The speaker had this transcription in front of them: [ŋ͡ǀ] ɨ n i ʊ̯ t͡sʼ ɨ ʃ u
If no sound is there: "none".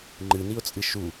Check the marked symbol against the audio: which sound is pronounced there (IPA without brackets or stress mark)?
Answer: ŋ͡ǃ